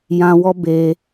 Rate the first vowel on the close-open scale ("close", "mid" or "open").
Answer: open